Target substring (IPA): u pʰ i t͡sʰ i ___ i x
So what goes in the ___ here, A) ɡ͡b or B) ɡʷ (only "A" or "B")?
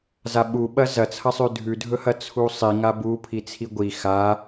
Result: B